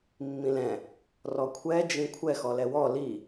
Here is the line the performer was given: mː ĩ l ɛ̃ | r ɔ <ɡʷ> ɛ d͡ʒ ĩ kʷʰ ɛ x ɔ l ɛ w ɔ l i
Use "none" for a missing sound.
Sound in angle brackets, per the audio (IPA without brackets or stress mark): kʷʰ